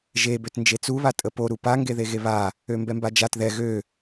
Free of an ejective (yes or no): no